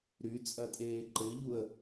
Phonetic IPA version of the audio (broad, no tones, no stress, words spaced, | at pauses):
ɾy t͡sʼɐtʼeːǃɘʎuə̯